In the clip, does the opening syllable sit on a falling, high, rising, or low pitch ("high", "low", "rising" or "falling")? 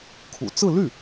low